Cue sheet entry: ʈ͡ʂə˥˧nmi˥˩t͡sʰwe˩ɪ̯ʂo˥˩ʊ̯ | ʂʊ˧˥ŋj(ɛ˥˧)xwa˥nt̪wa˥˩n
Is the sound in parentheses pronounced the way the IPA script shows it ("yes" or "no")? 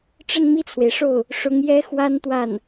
no